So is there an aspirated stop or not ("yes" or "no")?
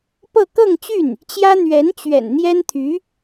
yes